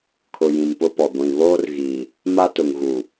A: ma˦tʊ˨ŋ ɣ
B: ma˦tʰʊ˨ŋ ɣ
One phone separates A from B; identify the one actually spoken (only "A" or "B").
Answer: A